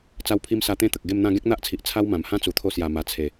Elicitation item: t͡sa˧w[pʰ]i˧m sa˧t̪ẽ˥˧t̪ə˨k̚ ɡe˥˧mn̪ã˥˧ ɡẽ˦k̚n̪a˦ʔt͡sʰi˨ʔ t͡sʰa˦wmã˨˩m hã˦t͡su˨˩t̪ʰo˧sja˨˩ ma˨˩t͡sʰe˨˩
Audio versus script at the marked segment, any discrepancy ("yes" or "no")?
no